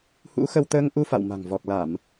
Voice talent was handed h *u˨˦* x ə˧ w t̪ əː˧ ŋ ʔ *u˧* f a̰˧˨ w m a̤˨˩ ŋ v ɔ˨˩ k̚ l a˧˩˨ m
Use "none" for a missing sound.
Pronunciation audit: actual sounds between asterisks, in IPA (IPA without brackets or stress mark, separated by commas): ṵ˧˥, u˧